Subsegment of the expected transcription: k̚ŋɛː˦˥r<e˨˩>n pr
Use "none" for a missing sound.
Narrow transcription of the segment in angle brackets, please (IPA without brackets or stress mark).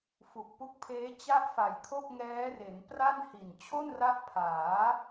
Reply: e˩˦